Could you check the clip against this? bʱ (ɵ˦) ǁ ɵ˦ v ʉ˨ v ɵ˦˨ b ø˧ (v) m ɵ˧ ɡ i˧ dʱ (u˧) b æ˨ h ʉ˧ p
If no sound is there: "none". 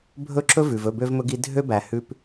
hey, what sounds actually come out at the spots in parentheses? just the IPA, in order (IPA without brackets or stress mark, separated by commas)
ɵ˦˨, v, ø˧